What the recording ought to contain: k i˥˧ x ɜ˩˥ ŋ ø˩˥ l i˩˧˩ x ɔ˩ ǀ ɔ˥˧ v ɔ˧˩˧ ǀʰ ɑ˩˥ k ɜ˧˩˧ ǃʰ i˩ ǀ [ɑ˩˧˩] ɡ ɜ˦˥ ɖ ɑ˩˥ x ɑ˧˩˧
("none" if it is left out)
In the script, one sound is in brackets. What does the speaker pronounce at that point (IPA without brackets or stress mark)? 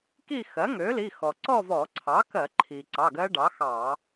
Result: ɑ˩˧˩